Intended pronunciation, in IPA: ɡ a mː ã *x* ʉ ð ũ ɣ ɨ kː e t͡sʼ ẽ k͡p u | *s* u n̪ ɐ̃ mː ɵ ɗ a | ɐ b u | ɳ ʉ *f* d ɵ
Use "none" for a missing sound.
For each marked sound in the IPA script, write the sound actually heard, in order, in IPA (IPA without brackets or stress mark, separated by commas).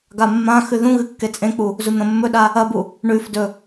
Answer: x, z, f